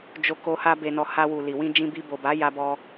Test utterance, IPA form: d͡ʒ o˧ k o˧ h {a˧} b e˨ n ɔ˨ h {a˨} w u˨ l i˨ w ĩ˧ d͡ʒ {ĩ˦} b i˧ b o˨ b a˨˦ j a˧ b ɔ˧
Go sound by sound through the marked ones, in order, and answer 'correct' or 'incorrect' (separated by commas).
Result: correct, incorrect, incorrect